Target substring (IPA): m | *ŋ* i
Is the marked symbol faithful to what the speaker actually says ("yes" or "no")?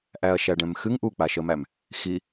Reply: no